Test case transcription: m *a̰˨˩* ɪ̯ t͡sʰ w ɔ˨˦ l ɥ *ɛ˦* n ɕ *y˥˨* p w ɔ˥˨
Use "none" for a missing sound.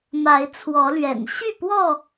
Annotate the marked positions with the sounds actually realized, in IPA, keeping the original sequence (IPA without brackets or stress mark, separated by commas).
a˨˦, ɛ̰˨˩, y˥˨